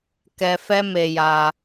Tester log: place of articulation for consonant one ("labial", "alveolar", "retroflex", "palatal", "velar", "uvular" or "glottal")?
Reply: velar